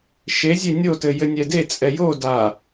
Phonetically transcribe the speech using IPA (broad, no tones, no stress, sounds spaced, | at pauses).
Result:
ʃ e zʲ e nʲ o t ɘ j ɘ nʲ ɛ d e t͡sʼ ɛ j o d a